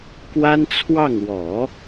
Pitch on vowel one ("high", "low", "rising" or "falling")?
high